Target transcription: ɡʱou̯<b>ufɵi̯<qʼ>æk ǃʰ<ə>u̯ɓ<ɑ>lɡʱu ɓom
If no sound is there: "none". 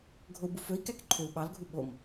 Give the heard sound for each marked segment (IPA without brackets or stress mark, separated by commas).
b, k, ø, ɑ